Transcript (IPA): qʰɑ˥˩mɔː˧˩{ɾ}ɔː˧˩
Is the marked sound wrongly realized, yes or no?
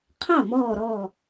no